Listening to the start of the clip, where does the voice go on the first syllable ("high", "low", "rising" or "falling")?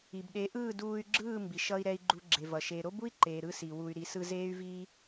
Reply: low